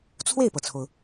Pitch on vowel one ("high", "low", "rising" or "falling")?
falling